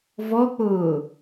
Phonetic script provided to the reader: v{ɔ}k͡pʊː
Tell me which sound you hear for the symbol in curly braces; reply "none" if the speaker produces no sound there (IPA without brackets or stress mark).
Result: ɔ